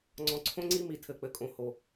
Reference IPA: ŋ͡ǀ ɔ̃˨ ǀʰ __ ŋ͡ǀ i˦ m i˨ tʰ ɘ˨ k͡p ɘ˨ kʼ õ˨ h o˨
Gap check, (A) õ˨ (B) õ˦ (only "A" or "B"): B